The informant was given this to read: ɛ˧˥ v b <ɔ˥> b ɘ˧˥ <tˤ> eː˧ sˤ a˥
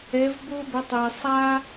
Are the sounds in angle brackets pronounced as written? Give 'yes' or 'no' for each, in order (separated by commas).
no, yes